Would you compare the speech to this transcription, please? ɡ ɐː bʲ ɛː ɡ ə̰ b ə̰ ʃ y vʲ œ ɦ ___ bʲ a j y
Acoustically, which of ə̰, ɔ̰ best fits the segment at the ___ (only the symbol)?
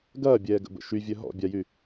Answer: ɔ̰